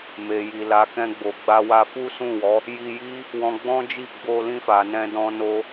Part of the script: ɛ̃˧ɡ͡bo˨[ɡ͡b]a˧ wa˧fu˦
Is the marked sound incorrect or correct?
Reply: correct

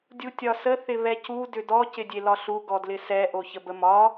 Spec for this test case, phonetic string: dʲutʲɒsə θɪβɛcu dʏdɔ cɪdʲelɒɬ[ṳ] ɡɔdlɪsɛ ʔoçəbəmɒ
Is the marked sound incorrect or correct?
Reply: incorrect: u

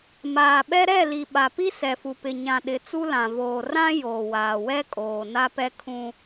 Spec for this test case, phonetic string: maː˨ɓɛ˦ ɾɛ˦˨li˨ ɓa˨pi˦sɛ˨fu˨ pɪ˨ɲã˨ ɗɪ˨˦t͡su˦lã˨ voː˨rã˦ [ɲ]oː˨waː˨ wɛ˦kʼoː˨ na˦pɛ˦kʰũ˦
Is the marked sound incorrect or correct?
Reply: incorrect: j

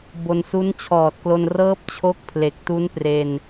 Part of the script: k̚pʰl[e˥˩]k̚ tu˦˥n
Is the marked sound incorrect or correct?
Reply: incorrect: e˨˩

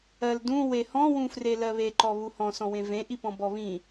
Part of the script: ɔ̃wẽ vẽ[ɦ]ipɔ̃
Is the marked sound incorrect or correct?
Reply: incorrect: ʔ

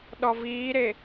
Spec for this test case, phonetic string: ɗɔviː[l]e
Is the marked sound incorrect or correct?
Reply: incorrect: ɾ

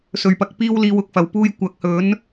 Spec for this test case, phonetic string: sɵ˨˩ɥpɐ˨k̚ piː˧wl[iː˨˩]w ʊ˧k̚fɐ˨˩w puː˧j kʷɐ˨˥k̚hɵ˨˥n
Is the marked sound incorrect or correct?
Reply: incorrect: iː˨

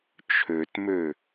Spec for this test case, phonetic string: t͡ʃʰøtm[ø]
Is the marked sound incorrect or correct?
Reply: correct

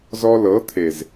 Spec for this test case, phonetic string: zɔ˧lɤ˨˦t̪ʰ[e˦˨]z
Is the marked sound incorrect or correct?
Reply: incorrect: e˨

